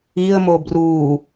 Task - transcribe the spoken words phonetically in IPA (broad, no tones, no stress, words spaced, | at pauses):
iə̯mo bru